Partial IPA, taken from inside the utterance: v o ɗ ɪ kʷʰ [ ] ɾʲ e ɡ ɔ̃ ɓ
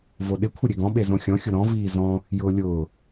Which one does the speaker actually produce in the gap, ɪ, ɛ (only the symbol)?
ɪ